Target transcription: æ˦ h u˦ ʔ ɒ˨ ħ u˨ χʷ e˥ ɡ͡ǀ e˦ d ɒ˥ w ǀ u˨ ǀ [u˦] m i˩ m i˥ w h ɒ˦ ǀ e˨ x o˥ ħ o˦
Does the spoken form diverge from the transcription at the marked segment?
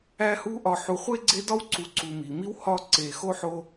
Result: yes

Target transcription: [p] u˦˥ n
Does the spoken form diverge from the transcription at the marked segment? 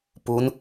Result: no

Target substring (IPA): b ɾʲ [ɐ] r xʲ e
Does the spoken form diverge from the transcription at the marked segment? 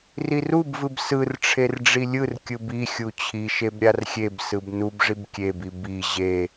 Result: yes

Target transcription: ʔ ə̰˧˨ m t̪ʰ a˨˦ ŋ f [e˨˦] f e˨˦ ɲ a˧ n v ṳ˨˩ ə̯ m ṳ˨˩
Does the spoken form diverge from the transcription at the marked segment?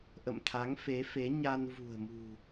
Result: no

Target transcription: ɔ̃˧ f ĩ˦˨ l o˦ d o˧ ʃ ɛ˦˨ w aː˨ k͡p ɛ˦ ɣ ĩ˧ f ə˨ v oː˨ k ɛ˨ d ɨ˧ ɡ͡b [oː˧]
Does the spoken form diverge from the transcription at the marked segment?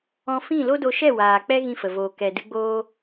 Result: yes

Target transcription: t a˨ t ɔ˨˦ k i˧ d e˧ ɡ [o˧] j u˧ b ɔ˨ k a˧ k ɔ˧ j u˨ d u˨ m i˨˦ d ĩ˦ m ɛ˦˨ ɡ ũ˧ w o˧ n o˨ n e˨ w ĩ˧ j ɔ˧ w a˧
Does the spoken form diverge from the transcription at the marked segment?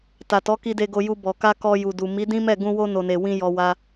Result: no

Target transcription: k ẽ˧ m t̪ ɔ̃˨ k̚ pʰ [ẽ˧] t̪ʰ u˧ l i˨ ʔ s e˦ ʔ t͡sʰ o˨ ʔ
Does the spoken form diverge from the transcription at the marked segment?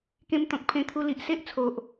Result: no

